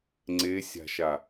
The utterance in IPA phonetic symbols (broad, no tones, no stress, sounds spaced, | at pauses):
ŋ͡ǀ e sʲ a̤ ʃ a